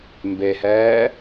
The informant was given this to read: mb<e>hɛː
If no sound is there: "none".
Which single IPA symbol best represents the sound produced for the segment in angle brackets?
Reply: e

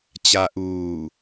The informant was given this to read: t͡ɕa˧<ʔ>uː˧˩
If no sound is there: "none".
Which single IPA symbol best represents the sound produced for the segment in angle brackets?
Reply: ʔ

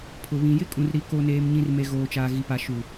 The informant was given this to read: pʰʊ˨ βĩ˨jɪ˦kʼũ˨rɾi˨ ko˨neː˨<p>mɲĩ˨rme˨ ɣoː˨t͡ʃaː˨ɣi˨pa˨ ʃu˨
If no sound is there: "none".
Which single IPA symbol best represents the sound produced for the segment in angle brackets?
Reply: none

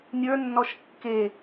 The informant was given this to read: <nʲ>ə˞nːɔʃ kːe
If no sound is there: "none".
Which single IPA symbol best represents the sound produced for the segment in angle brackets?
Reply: nʲ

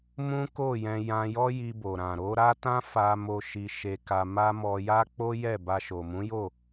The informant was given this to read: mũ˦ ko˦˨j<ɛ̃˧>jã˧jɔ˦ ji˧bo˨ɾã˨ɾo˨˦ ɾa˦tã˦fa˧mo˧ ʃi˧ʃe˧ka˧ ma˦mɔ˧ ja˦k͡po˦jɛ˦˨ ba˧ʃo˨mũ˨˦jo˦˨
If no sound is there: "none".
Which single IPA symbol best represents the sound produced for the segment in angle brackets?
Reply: ɛ̃˧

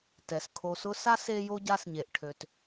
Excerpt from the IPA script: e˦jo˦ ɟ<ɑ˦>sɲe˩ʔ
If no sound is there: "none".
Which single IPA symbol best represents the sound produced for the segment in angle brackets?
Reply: a˦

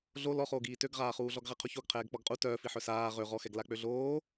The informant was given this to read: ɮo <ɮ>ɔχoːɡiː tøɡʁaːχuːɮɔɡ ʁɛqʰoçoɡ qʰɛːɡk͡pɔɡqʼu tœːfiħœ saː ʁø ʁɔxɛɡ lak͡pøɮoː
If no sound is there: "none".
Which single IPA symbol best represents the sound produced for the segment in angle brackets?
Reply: l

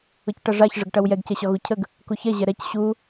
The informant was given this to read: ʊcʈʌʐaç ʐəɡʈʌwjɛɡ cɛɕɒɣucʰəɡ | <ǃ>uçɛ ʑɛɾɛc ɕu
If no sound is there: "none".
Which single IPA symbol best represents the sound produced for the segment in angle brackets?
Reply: k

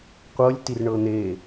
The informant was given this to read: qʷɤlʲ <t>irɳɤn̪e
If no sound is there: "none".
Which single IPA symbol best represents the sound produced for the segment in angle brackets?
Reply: t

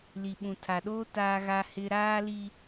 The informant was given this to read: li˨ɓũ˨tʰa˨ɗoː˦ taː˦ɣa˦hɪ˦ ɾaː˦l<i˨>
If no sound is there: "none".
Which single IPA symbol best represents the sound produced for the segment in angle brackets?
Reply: i˦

